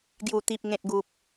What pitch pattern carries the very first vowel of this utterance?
low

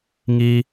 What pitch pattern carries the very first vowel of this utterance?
high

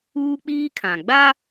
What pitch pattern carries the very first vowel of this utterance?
high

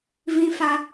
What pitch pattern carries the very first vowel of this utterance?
high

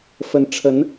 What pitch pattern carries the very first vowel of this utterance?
rising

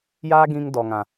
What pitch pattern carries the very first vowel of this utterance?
high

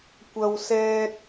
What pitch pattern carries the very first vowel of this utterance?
high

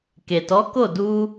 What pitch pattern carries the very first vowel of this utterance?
low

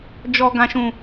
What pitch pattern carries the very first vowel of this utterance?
low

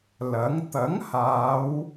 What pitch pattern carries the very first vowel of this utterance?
rising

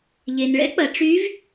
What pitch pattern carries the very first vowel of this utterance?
low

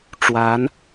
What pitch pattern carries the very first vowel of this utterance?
rising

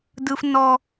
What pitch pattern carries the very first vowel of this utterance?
high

